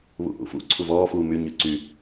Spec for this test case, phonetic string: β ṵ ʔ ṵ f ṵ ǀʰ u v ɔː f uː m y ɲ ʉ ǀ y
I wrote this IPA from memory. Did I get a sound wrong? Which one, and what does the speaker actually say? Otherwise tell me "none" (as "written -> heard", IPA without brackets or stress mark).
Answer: none